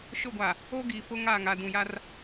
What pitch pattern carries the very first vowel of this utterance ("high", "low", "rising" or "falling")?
falling